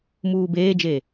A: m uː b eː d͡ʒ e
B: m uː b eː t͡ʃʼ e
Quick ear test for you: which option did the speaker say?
A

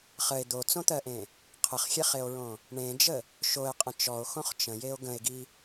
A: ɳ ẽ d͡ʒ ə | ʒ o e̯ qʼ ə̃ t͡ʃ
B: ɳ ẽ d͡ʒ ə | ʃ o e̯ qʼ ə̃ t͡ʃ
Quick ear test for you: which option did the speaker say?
B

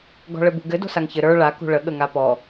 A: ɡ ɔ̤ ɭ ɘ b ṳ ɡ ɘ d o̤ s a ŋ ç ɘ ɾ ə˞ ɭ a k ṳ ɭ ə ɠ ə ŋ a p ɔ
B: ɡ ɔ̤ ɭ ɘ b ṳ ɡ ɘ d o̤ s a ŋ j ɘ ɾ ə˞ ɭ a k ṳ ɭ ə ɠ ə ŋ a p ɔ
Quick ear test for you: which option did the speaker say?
A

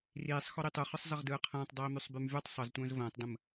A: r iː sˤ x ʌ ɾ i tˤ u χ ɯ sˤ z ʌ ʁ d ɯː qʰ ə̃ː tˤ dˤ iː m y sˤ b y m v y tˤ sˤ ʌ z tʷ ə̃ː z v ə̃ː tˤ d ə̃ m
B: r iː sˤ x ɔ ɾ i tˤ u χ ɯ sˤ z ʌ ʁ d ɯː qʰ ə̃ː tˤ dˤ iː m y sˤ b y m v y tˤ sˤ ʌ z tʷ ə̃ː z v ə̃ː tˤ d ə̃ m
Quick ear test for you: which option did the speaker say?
B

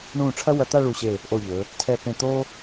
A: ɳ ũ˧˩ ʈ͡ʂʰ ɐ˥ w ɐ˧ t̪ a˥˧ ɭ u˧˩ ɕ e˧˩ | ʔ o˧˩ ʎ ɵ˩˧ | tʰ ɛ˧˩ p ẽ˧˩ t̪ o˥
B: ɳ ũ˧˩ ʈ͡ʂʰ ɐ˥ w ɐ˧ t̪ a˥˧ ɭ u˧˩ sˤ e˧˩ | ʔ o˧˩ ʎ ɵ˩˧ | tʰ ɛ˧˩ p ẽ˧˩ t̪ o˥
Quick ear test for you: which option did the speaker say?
A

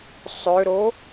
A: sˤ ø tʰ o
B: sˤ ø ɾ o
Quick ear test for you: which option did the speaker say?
B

